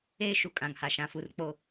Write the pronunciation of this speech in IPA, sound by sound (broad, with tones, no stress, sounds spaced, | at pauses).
eː˦ ʃ u˨ kʼ ã˨ ŋ h a˨ ʃ ã˨ f u˨ r k͡p o˦